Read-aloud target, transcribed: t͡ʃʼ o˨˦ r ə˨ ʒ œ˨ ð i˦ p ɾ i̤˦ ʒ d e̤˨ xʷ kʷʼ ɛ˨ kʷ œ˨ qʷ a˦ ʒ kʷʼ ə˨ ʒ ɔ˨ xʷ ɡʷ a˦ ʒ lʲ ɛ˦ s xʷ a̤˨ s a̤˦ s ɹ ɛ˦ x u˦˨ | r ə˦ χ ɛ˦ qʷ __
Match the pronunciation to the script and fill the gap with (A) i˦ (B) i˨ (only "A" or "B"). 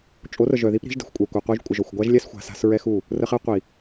B